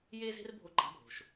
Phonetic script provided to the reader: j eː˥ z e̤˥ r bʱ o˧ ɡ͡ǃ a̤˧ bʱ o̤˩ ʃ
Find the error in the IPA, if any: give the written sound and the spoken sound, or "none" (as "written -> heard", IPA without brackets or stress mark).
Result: none